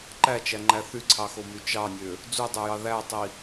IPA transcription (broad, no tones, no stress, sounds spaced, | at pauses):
ǃ æ t͡ʃ æ ŋ͡ǃ æ θ y ǀʰ ɑ x o m y t͡ʃ ɑ nʲ ø | d͡z u dˤ ø j ɑ ð æ tˤ i